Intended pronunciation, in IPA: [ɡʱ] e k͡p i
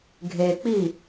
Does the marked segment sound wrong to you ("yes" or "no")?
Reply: no